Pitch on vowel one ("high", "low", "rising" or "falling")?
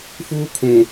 high